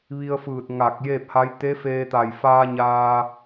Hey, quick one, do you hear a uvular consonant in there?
no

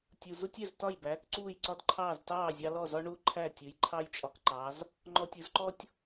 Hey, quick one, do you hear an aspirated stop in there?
yes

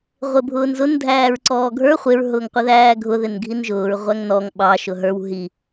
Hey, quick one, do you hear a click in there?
yes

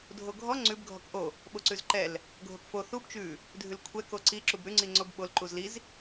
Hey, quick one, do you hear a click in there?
yes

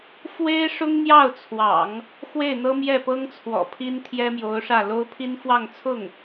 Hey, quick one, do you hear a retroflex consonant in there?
yes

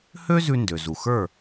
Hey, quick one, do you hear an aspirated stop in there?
no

